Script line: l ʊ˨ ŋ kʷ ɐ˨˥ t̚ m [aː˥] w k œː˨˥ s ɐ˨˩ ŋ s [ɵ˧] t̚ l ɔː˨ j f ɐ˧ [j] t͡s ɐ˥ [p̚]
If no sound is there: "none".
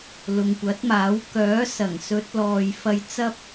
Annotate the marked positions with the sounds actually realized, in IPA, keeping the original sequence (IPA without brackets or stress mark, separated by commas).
aː˨˥, ɵ˨˥, j, p̚